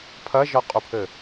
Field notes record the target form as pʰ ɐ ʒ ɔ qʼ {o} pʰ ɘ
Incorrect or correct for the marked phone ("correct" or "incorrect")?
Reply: incorrect